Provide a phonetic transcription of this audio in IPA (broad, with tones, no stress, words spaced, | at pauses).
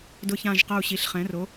dʊ˧˩çã˧˩ʒqɐ˧˩u̯ɕi˩˧ɬ χɛ̃˩˧ro˩˧